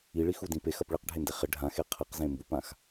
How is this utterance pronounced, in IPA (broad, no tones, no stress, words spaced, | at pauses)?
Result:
iɭixudĩ pexɐp ɭiqɖʱende χɪ ɖʱãxe qʰɘqzẽ mbupãx